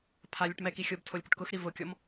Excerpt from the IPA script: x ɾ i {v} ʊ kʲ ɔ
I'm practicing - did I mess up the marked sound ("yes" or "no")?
no